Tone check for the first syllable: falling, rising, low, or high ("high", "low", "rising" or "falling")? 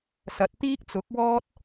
low